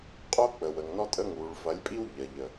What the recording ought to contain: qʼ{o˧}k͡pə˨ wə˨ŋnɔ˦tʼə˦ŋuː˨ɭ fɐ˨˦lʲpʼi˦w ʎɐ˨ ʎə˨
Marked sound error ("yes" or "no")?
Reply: yes